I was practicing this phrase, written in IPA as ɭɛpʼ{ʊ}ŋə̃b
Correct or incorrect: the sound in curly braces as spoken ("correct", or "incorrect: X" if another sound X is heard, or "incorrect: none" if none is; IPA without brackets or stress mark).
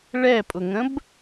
correct